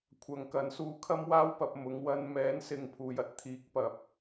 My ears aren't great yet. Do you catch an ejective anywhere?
no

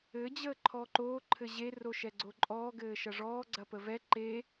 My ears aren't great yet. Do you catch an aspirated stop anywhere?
yes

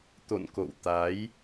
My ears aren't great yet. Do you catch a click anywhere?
no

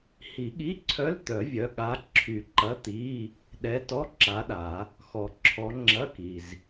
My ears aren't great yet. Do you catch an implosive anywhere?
yes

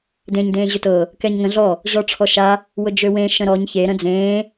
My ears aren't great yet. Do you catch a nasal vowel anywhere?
yes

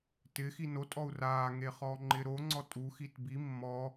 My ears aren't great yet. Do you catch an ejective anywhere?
yes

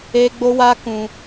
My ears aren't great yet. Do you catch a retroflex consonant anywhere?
no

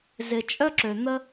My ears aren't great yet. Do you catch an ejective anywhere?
yes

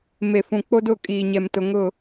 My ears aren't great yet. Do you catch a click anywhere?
no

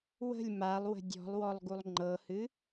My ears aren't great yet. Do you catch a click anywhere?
yes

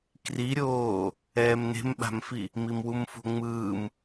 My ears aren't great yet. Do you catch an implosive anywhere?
yes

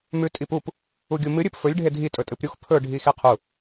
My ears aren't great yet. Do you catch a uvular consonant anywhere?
yes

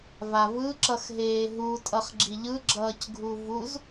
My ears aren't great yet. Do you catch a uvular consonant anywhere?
yes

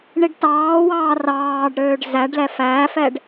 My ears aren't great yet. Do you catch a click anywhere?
no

